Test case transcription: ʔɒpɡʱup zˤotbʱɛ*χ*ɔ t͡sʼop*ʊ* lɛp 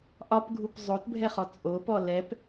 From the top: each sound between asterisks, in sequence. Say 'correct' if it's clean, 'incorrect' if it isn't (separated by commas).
correct, incorrect